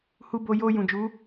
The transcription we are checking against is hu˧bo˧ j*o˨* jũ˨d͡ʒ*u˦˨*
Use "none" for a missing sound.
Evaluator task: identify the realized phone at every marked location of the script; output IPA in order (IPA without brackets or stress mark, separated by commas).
o˧, u˨˦